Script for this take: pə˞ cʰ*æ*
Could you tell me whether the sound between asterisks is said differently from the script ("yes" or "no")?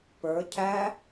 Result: no